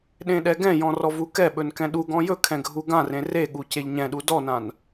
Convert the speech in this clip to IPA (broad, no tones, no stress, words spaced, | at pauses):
ɗẽɗɛɡɛ̃jɔ̃ rɔvukɛɓɵn kɛ̃ɗuɡɔ̃ jɵkʰɛ̃ ɡʱuɡãrẽ reɠu ceʎɲɛ̃ɗu dɔnãn